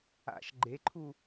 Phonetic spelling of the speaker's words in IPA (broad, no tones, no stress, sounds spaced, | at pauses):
a̰ ʃ ɡ͡ǃ e ǃʰ u